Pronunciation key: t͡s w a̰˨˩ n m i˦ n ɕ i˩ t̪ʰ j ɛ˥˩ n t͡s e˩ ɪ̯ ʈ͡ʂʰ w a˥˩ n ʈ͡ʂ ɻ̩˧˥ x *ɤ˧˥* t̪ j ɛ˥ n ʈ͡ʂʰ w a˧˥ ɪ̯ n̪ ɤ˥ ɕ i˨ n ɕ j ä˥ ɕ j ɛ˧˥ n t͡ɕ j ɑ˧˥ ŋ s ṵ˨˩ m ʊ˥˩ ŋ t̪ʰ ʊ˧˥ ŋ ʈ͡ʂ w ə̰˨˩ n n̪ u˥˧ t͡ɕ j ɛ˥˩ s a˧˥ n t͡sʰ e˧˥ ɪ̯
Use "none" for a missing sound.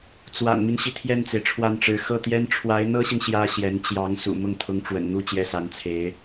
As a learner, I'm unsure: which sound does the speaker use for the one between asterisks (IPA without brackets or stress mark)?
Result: ɤ˥˩